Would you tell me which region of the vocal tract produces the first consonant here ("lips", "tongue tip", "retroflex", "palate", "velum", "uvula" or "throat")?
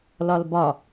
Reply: tongue tip